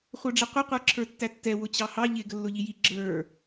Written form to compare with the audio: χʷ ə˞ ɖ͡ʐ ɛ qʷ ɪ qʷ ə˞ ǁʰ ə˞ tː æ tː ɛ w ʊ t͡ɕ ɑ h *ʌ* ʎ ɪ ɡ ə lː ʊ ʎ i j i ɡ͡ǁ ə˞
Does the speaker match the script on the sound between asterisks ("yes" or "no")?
no